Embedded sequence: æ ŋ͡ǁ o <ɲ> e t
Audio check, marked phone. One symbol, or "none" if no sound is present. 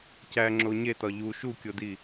ɲ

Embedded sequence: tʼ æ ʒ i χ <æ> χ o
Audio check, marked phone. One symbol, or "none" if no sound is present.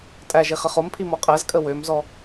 ə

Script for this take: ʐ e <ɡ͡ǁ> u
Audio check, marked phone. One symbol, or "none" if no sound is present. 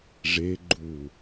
ɡ͡ǃ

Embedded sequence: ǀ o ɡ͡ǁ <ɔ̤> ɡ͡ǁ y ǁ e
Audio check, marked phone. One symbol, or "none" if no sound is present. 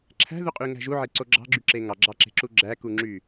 ɑ̤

